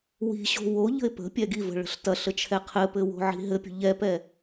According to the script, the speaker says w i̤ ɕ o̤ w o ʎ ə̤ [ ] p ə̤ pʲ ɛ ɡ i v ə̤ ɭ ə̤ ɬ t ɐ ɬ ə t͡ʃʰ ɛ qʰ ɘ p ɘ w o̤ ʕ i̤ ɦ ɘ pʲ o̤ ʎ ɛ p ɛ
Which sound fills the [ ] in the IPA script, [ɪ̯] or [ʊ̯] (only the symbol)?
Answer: ɪ̯